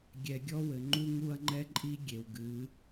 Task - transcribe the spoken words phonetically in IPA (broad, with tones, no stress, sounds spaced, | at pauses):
ɡʲ ɛ˨ ɡʲ ɔ˦ w ɘ˨ ŋ͡ǃ u˦ ŋ u˦ ɐ̯ ŋ͡ǃ ɛ˦ ǃʼ i˦ ɡʲ e˨ w ɡ ɨ˨˦